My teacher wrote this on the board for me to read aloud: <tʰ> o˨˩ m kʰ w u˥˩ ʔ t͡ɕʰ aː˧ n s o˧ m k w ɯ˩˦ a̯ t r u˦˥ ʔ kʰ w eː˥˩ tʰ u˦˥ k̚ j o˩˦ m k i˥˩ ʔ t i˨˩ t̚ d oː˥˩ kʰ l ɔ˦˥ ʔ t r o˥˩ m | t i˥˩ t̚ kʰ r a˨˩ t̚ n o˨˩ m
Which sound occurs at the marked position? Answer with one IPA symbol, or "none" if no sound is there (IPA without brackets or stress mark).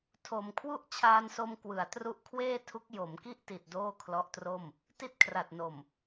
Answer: tʰ